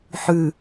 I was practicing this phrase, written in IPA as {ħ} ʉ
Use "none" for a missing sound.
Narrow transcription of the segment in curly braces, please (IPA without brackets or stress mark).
ħ